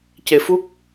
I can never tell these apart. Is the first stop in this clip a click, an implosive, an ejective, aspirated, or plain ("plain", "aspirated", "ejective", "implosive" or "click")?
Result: plain